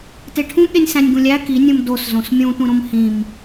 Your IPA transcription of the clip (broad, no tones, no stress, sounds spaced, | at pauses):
t e ʈʰ ũ ɠ e nʲ s æ̃ nʲ ɡ ũ lʲ æ k i nʲ ũ m d o s z õ s mʲ ũ tʷ ĩ ɾ õ m h ĩ m